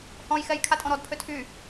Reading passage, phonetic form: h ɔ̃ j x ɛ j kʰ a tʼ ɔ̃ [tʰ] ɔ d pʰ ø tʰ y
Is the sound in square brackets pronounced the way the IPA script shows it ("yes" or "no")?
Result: no